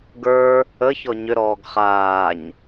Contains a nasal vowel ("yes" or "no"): no